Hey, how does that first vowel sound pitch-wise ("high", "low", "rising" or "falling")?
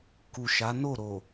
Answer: low